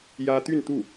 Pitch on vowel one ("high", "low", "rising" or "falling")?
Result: high